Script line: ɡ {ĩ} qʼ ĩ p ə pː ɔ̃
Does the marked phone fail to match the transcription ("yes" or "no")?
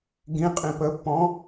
no